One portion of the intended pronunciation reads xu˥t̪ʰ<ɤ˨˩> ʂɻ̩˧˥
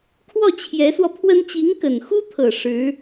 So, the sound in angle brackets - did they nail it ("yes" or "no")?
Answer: yes